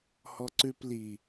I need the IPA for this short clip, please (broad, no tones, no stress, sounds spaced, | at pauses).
h ɔ ǀ ʉ p l i